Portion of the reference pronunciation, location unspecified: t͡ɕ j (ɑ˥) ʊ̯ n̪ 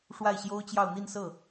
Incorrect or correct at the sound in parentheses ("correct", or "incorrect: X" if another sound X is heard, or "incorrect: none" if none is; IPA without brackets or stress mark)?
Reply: incorrect: ɑ˥˧